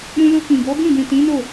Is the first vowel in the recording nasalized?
yes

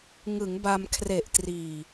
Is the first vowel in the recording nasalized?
no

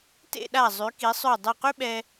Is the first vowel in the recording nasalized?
no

